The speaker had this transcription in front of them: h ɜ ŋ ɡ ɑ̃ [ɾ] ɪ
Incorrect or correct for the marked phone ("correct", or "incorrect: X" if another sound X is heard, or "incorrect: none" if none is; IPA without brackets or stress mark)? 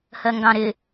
correct